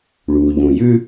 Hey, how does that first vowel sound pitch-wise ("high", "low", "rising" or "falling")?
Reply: low